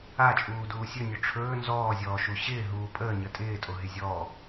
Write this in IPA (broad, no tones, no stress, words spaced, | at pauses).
at͡ʃʼuːduː sʲɵnʲɵ ʈ͡ʂʰɵː nzɔːzʲɔːʃu ɕɪːɦuː pʼəːɲə tʼɪːtʼoɦɪ zʲɔː